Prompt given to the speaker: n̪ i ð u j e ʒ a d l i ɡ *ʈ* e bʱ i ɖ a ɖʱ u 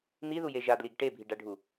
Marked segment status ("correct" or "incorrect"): correct